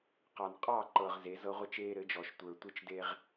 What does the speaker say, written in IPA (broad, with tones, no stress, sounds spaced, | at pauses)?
q ɑ˨ n qʼ ɑ˦˨ ǃ ɤ˨ ʁ z e˨˦ z ɤ˦ ʁʷ ɘ˦ t͡ʃ eː˦ ɾ ɘ˨˦ d͡ʒ ɔ˨ ʃ tʷ ə˞˨ tʷ ɘ˦ t͡ʃ d e˦ ʁ